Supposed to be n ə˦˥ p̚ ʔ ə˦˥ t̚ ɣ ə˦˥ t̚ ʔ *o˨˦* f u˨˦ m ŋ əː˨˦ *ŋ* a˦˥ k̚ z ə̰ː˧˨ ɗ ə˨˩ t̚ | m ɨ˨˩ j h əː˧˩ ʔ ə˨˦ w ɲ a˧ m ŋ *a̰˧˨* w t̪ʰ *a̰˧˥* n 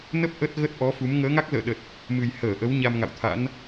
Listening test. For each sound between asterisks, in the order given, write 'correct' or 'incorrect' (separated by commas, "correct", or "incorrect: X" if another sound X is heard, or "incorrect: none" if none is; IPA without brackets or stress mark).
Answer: incorrect: ɔ˨˦, correct, correct, correct